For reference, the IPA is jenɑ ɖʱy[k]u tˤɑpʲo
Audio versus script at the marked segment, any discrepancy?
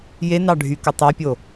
no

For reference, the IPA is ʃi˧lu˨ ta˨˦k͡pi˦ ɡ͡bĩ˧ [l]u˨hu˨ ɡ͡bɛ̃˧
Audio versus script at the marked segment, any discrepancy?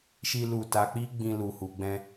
no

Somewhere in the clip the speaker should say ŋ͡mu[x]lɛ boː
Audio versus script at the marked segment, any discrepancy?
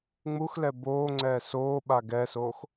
no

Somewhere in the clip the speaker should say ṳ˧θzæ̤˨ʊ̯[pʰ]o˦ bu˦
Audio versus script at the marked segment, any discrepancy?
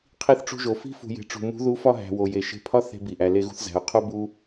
yes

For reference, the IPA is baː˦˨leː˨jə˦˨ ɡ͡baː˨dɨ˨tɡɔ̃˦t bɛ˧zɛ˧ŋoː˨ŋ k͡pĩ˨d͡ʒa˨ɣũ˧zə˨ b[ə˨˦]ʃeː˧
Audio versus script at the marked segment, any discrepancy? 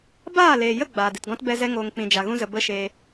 yes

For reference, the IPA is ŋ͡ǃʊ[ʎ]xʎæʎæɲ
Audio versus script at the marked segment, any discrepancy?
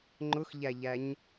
yes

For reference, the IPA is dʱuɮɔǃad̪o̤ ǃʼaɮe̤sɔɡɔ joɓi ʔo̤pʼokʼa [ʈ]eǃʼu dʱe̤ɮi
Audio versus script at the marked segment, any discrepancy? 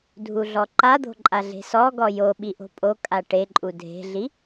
no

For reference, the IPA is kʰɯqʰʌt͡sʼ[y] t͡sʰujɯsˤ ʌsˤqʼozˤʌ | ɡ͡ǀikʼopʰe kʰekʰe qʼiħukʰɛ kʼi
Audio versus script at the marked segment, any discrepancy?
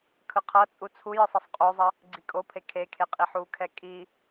yes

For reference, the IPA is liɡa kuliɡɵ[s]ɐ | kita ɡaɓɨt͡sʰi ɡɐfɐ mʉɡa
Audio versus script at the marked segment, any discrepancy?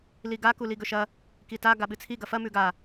yes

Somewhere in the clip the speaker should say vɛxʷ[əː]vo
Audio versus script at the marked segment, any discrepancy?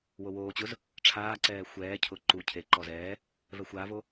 yes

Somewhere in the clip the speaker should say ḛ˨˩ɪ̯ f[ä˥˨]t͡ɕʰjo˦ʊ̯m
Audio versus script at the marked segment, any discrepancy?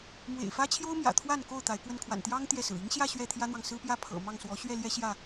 yes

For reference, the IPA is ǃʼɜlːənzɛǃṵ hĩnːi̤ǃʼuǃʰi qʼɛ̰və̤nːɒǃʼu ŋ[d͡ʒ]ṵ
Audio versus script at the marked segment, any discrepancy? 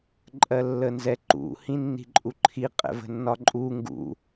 yes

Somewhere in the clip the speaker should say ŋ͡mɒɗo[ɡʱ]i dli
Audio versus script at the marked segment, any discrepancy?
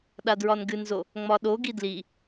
yes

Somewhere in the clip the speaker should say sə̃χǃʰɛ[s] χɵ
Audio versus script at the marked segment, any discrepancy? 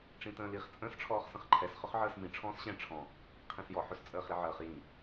no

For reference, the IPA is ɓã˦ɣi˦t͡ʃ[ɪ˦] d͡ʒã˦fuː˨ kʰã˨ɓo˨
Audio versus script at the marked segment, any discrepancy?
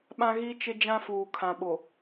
no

